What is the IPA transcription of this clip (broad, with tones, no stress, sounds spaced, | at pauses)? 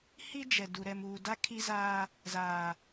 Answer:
h i˦ d͡ʒ ɛ˨ d u˨ ɾ ɛ˨ m uː˨ d a˦ kʰ i˦ z aː˦ | z aː˨